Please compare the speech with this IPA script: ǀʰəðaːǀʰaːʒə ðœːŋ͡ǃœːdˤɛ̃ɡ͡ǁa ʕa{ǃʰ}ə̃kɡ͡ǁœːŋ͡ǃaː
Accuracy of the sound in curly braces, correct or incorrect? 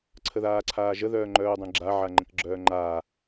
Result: incorrect